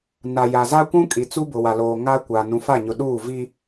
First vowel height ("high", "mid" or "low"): low